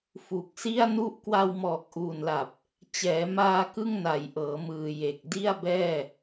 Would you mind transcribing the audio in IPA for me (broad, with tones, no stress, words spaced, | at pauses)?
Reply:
fu˨˩k̚si˥˩a̯nu˥˩ʔ kwa˧wmɔː˨˩k̚ʔuː˨˩nla˨˩p̚ | t͡ɕɛː˩˦maː˧ kɯ˥˩ŋna˨˩jʔɤː˩˦mɯː˨˩ je˨˩k̚di˥˩a̯bɛː˥˩